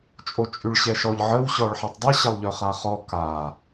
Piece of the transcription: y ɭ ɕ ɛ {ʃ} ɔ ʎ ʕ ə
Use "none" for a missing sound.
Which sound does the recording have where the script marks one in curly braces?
ʃ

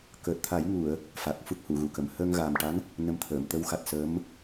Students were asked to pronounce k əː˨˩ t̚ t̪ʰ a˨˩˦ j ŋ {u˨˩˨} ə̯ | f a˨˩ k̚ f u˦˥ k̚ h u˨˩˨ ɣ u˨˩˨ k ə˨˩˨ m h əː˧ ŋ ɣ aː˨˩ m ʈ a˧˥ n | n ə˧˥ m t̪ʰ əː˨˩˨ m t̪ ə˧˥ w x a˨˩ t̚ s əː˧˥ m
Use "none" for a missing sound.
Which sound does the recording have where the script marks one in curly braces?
u˨˩˨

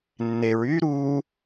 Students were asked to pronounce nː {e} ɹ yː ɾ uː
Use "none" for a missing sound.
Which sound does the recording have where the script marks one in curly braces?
e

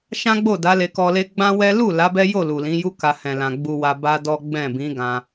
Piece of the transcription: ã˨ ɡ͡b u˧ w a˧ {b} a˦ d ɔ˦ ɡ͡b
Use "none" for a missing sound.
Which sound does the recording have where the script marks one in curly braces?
b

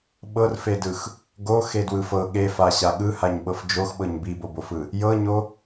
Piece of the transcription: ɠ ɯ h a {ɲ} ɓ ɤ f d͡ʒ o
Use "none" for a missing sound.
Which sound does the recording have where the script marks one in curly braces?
ɲ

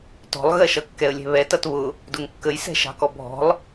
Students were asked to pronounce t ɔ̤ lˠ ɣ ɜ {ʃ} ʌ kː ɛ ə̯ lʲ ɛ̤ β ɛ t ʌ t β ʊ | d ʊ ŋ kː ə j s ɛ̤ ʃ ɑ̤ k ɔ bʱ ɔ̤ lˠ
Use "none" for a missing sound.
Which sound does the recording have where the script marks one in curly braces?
ʃ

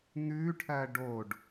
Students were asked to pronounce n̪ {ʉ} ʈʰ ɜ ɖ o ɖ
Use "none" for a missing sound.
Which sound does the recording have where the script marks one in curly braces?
ʉ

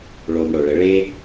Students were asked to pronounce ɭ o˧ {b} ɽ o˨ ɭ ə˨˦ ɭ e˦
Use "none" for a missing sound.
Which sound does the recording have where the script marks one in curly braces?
m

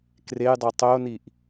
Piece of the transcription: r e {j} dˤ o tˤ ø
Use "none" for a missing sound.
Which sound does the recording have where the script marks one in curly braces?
j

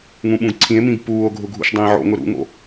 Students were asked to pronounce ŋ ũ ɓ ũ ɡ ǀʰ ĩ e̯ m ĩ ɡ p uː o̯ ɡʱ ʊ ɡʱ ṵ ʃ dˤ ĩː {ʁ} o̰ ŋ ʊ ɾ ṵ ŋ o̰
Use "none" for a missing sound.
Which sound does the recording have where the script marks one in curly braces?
ʕ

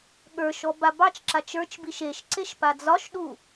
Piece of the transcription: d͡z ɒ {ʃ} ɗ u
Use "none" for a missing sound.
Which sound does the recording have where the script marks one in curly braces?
ʃ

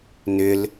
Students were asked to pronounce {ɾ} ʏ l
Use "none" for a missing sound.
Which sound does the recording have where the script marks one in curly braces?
n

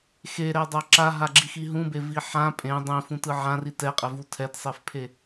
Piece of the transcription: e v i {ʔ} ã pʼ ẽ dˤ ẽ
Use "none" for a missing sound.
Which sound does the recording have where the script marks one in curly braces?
ħ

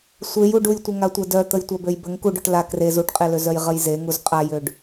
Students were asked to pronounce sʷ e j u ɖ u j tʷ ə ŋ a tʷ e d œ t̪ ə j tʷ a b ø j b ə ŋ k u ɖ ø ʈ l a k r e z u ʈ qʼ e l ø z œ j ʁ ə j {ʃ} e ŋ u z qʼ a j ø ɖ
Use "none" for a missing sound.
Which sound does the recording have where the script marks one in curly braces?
z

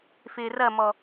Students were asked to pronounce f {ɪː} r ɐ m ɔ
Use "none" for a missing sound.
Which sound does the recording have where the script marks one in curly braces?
ɪː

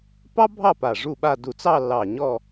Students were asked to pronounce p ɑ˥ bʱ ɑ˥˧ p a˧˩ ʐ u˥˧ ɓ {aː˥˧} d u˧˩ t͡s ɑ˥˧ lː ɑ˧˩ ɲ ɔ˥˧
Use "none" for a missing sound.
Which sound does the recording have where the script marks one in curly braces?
a˥˧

